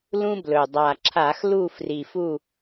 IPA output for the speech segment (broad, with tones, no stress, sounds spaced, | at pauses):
l ũ˥ b l ɵ˨˩ dˤ a˨˩ ǁʰ a˧˩˧ x l u˦˨ f r i˨˩ f u˦˨